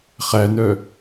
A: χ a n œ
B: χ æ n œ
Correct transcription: B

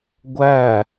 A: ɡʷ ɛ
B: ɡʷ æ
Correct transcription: B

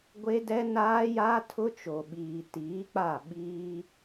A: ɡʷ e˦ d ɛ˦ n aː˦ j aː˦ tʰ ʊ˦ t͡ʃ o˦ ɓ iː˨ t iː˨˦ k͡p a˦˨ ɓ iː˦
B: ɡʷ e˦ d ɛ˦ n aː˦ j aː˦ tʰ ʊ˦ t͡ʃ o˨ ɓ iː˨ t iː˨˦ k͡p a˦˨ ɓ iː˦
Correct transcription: B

